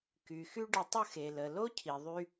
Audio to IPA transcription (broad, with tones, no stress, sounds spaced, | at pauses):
k y˩ x y˥ ɖ ə˧ tˤ ə˥ x e˩ l ə˩ l o˥ cʰ i˩ ðˤ y˧